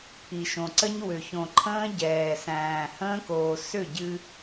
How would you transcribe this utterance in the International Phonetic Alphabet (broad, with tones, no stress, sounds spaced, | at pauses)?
pʰ i˨ ʃ õ˨ ǀ ə˦ ɲ w ʏ˨ ç õ˨ ǃʰ ə̃ː˦ ɟ ɛː˨ s æ̃ː˨ h ə̃ː˦ k oː˨ s ʏ˦˨ ɟ ɨ˦